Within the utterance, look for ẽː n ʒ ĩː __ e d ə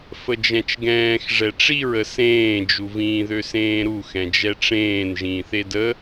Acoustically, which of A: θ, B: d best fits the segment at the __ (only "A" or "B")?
A